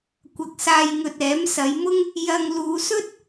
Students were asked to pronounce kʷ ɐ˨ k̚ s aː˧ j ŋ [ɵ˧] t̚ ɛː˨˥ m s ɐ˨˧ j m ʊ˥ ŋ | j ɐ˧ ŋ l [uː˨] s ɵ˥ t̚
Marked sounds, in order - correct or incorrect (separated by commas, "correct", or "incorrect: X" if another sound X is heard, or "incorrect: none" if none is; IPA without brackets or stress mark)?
correct, correct